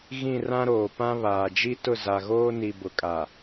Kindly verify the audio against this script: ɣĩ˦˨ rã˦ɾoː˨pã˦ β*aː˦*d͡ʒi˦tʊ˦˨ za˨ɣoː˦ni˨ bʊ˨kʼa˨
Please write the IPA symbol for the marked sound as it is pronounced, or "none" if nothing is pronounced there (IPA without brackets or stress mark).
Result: aː˨